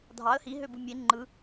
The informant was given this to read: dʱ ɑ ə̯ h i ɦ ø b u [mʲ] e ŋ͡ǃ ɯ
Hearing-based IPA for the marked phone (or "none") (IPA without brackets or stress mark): mʲ